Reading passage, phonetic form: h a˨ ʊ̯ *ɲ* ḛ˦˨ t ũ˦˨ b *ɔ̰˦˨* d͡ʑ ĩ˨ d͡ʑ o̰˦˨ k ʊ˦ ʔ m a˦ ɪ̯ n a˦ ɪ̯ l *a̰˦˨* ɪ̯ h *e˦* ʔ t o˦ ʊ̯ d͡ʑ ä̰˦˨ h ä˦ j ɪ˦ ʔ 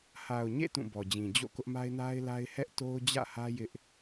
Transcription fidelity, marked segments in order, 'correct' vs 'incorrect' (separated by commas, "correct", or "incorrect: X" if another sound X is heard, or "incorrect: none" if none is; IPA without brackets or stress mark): correct, incorrect: ɔ˨, incorrect: a˦, incorrect: ɛ˦